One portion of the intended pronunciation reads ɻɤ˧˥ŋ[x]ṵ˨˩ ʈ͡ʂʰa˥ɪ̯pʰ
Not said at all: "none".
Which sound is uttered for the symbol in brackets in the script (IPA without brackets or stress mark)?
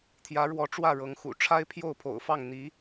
x